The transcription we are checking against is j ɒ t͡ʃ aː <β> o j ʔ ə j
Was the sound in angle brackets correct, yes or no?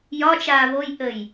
yes